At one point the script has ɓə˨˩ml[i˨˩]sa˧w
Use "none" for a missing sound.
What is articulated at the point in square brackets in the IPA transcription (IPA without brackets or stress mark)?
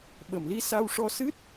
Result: i˧